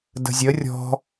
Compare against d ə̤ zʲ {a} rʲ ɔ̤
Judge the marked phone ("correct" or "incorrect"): incorrect